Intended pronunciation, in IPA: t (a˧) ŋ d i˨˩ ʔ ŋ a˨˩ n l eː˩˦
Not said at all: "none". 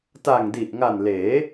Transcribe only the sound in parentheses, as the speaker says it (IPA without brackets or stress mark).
a˨˩